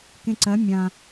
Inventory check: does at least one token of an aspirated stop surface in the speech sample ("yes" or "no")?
no